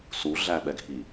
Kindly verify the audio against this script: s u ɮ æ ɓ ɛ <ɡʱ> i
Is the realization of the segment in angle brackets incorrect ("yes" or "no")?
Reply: no